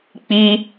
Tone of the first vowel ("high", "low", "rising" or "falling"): high